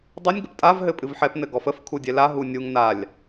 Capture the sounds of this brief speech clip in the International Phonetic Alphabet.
dˤ ɨ nʲ ɡ ə p tʼ a v ɦ ɘ pʼ ɨ v ħ ɛ p n ɘ ɡ ɔ f ə f kʰ u dʲ ɛ l a ɦ u nʲ u ŋ n a lʲ

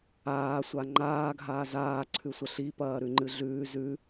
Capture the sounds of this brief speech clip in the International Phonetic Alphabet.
aː sʷ a ŋ͡ǃ aː ɡʱ aː z aː ǀʰ ʉ sʷ ɐ ɬ i p ɐː ɾ ʉ ŋ͡ǃ ɨ ɮ ʉː z ʉ

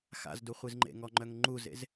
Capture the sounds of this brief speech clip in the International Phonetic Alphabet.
x a̰ z d u χʷ i z ŋ͡ǃ ḛ ŋ ɔ ŋ͡ǃ œ ŋ ŋ͡ǃ u z ḛ z

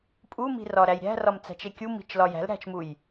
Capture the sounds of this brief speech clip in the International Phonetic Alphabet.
pʼ u m i̤ r ɒ ɾ æ j ɾʲ æ̤ r ɒ m t͡s æ̤ t͡ʃ e kʲ u m i̤ t͡ʃ l ɒ j æ̤ l ɾ æ̤ t͡ʃ m u j

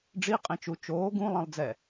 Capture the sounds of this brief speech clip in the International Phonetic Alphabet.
ɖ͡ʐ i qʼ ẽ t͡ʃ u t͡ʃ oː ɡ ũ lˠ ɛ̃ lˠ d͡z ɛ

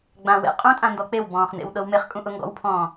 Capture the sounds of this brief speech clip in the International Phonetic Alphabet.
ɡ͡b ã w ḛ qʼ ũ tʼ ã n d ɔ k͡p e w b ɔ̃ː χ n ḛ w ɗ ɤ w m e χ kʼ ũ ʔ ʊ ŋ ɡ ɔ̰ w pʰ ɔ̃ː

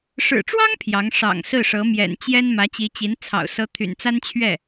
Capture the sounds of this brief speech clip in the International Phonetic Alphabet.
ʂ ɻ̩˨˩ ʈ͡ʂ w ɑ˥ ŋ pʰ j ɑ˧˥ ŋ ʂ ɑ̰˨˩ ŋ s ɹ̩˥˩ ʂ ɤ˧˥ m j ɛ̰˨˩ n t͡ɕ j ɛ˥ n m ä˧˥ t͡ɕ i˧˥ t͡ɕ i˧˥ n t͡sʰ ɑ̰˨˩ ʊ̯ s ɤ˧˥ t̪ʰ y̰˨˩ n t͡s a˥ n t͡ɕʰ ɥ ɛ˥˩

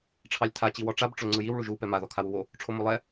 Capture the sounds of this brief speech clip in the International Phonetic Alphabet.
ʈ͡ʂʰ ɑ lʲ tʰ a t͡ɕ i w ɔ ʈ͡ʂ a b ʈ͡ʂ o ŋ͡ǀ ɯ j i w ɭ u ʒ u p ɛ m a ð ɔ kʰ a w u w o | ʈ͡ʂʰ o m o lˠ ɛ

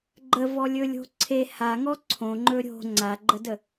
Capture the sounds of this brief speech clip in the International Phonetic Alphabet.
ɡ͡ǃ ə v ɔ lʲ ɵ lʲ o̤ ǀʰ e h a ŋ ɔ ǀʰ õ ŋ͡ǃ ɵ ɾʲ o̤ ŋ͡ǀ a ɡ͡ǃ ə d ə

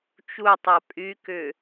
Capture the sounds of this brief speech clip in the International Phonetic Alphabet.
t͡ʃ u tˤ a pʼ y k ʏ

